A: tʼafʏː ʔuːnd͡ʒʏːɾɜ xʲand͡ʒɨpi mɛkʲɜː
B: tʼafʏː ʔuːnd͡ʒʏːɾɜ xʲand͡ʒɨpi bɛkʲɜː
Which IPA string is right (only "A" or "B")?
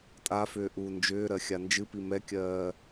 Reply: A